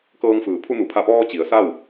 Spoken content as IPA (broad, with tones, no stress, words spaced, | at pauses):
kɤː˧ŋfɯː˩˧ pʰu˧nu˩˧ pʰa˧˩pɔː˧ t͡ɕi˩˧ə̯sa˥˨w